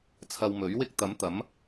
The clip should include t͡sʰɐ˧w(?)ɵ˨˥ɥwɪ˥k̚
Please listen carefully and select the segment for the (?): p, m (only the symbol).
m